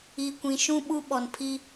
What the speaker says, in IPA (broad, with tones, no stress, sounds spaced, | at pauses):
i˨ kʷ ĩ˨ ʃ ũ˦ ɓ u˦ ɓ ɔ˨ n pʰ i˦